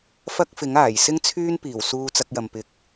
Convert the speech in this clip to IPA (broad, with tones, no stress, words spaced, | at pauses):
fɐ˥k̚fɪ˨˥ŋ aː˨˩j sɪ˥ŋt͡sʰyː˥n piː˨˩w suː˧t͡sɐ˧k̚jɐ˨m pɪ˧k̚